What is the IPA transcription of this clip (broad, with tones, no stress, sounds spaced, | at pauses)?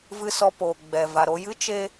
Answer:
v ɨ˧ s ɔ˧ p oː˨ ɡ͡b ɛ˨ v a˨ ɾ o˧ j ɨ˦ t͡ʃ e˦